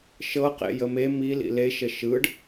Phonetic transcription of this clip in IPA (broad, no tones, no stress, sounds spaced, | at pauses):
ʃ ɤ q ḛ j ə m e m i l ḭ l e ʃ ə ʃ ɯ ɖ